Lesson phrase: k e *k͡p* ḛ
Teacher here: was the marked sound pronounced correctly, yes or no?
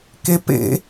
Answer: no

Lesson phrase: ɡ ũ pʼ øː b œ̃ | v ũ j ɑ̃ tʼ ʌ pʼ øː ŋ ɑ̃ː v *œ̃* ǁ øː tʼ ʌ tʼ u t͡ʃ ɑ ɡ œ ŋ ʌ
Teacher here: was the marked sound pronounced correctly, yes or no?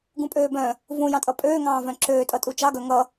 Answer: yes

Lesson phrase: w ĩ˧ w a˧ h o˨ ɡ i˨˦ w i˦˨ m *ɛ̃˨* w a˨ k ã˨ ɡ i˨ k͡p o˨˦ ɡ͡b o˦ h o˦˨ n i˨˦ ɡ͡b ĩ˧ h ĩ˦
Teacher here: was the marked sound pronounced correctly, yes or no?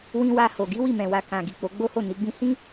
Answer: yes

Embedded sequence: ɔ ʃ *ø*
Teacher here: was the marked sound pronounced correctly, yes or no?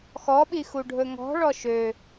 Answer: yes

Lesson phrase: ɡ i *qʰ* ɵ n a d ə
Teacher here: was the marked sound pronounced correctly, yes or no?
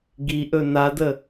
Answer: no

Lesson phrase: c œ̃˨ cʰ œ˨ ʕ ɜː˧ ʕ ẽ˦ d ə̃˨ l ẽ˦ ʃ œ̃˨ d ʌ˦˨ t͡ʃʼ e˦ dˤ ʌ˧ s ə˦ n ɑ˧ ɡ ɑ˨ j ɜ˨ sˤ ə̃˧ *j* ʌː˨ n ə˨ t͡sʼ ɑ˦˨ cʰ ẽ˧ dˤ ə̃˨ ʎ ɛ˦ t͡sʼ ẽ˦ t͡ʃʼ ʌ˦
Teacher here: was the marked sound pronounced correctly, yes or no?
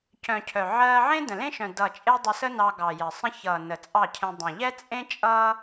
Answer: no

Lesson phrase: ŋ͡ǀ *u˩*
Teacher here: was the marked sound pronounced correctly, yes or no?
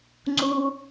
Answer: yes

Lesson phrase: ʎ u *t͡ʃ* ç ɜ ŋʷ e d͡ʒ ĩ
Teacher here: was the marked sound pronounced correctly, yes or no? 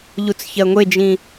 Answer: no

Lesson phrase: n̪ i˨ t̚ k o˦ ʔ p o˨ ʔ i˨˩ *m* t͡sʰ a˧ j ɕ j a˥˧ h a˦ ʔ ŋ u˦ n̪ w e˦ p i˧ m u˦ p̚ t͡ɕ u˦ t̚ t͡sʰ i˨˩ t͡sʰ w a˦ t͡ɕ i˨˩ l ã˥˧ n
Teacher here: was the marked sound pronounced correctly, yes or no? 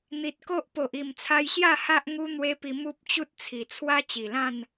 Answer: yes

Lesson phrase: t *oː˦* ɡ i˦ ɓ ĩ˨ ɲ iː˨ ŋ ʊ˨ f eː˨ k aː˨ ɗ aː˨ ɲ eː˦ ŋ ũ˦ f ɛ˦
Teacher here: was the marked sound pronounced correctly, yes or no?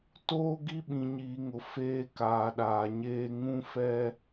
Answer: yes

